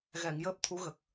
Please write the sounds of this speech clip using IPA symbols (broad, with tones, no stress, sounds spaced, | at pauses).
ɣ ɛ˨˩˨ ŋ j əː˦˥ p̚ t̪ʰ u˧˥ ɣ ə˨˩ k̚